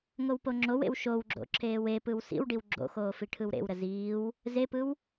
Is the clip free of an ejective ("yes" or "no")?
yes